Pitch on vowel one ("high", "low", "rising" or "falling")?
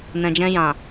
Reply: low